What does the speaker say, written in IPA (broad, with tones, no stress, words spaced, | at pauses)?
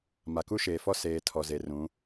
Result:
ma˨ku˦ʃeː˨fɔ˦ seː˨ tʰɔ˨ze˨rũ˨˦